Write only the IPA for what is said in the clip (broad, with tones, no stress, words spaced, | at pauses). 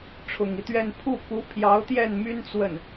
ʈ͡ʂʰʊ˨˩ŋi˦t̪ɥɛ˥˧n pʰu˥˩ku˧˥ pʰjɑ˧˥ʊ̯t̪jɛ˥˩nmy˥n t͡swə˥˩n